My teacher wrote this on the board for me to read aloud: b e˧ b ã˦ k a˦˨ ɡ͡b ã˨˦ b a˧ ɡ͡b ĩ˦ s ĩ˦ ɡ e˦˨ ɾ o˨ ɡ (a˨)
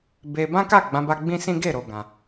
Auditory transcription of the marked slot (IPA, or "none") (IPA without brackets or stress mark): ã˨